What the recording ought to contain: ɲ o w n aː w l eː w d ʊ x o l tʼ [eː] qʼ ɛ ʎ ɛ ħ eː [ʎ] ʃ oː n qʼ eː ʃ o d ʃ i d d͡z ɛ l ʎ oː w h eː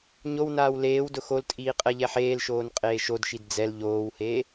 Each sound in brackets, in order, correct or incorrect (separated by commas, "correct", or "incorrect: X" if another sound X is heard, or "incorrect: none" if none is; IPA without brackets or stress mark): incorrect: iː, incorrect: l